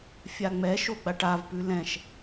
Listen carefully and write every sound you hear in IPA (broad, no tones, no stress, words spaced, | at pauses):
fʲaŋ͡mɛ ʃoɡ͡baʈavpʉ lɛ̃ʃ